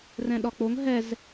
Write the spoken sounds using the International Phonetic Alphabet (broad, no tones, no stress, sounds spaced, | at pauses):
r ɛ̃ ɗ ɒ k͡p o ŋ ɦ ɛ z